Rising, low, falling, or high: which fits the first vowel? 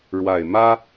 low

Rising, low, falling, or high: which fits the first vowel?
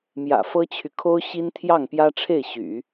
low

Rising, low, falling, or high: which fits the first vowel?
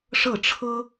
falling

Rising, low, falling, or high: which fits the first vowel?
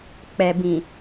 low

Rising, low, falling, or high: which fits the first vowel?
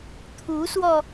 rising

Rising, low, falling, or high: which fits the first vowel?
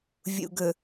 low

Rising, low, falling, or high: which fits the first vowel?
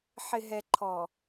low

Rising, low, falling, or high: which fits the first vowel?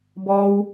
high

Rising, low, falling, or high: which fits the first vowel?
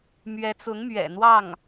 rising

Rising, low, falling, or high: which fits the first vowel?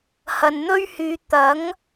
low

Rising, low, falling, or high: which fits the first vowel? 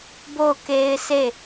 falling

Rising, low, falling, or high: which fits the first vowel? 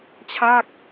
falling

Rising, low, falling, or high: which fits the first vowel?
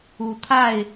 rising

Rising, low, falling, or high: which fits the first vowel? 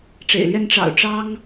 low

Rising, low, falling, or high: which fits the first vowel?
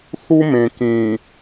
high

